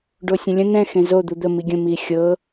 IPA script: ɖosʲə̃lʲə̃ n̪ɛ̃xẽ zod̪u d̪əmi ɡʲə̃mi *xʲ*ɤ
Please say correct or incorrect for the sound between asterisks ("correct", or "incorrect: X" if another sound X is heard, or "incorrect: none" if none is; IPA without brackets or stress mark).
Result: correct